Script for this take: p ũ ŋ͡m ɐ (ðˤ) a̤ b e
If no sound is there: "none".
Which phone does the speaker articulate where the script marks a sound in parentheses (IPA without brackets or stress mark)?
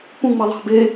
ðˤ